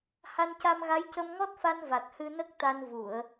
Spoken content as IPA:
ha˧nca˧mɣa˧˥j cə˧mŋɔ˦˥t̚fa˧n va˨˩t̚hɨ˧nə˦˥k̚ t̪a˧n vu˨˩˨ə̯

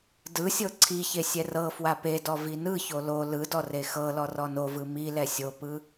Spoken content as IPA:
dɯsʲɤ ǀʰiçe sʲɛrɤfwa pedɔ vinɯço lo lɯdɔ rexɤlɔ rɔnovɯ mi lɛsʲopɯ

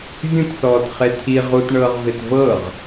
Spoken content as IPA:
vʲũtsɔːt χetʰi ʁutɳɤːʁvet vɤʁ

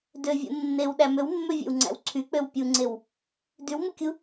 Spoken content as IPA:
døvʲṵ nːewɗæ møwmːøvʲḛwŋ͡ǀæ̰w ǀʰyk͡pøw pʲuŋ͡ǀew | dywmukʲu

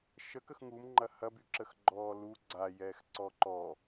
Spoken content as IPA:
ʃəkəx ŋumŋ͡ǃɐ hɐbyǁəxɡ͡ǃɔː lu ɡ͡ǀajɛːx ǀɔǃɔ

